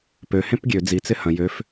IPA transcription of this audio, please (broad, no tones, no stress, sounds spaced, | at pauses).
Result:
p ø h ẽ p ɡʲ ø d͡z i t͡s ɪ h ɐ̃ j ø f